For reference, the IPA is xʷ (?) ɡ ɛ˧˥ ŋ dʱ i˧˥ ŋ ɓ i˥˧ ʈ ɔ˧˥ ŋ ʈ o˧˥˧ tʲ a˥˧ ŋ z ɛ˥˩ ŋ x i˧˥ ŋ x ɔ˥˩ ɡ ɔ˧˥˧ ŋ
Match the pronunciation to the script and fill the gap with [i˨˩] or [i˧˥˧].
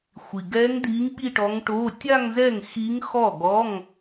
i˨˩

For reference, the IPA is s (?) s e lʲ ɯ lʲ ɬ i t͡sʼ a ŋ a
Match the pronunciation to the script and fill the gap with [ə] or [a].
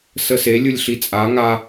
ə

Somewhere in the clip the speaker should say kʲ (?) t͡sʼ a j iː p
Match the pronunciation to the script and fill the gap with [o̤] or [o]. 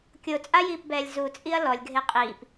o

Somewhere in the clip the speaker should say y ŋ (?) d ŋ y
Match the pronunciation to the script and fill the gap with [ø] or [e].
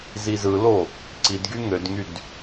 ø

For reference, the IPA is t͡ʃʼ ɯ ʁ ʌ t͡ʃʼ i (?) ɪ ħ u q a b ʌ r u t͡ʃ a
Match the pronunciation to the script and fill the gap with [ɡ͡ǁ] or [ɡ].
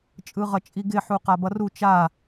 ɡ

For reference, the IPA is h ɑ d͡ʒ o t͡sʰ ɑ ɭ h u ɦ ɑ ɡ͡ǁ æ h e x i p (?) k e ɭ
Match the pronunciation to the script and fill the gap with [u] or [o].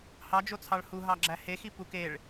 u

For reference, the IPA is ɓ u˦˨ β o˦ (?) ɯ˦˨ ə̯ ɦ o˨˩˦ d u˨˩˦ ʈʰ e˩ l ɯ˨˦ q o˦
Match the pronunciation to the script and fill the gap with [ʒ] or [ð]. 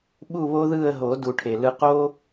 ð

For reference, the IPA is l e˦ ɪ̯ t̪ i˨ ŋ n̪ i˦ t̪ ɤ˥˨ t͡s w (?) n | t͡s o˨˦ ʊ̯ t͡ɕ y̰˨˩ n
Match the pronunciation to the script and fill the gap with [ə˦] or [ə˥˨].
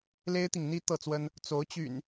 ə˦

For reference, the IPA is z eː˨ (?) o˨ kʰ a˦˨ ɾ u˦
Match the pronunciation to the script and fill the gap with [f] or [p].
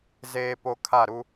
p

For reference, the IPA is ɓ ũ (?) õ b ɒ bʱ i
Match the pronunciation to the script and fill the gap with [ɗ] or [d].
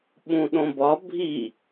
ɗ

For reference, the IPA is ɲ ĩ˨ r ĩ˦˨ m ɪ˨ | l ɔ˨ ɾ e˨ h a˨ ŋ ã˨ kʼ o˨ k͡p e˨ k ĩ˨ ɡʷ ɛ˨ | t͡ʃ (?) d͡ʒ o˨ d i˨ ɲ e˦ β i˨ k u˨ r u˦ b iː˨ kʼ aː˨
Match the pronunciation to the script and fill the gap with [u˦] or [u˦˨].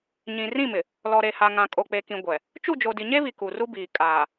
u˦˨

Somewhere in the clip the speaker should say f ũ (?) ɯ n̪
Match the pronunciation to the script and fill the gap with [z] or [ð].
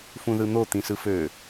ð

